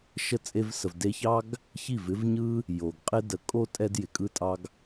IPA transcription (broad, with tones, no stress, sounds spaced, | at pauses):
ʃ ə˦˨ t͡sʼ e˧ v s ə˨ v d e˧ ç ɑ˦ ɡ | ç i˦˨ v ɪ˦ v ɲ ɯ˦ | j o˨ ɡ qʼ ɪ˦ d ə˨˦ kʼ o˦ tʼ ɛ˧ d j ɪ˨ kʼ ɯ˧ tʼ ɑ˧ ɡ